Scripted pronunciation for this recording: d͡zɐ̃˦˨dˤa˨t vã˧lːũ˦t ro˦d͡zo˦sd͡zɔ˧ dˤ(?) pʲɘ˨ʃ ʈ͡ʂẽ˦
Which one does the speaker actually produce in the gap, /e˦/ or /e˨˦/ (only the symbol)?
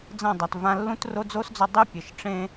e˦